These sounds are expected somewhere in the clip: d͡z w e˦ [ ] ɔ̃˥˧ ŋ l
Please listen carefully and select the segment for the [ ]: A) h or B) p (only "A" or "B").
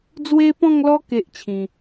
B